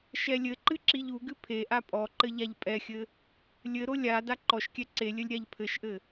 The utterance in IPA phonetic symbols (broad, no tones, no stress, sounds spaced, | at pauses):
ʃ ɛ lʲ ɘ ǃ ɨ ǁ i ʎ u ɡ ɨ pʰ e ʔ a pʼ ɔ ǃ ɘ ʎ a ʎ pʼ ɛ xʲ ɘ | lʲ ɘ ɾ o lʲ a d a ǃ ɔ ʃ kʲ ɛ ǀ e lʲ ɘ lʲ ɾʲ a ʎ pʰ ɘ ʃ ʔ ɘ